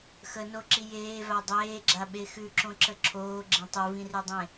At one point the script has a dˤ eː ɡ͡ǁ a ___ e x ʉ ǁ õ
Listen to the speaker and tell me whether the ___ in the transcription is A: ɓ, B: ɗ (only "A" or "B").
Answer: A